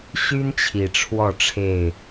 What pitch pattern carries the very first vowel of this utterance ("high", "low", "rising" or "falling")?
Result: high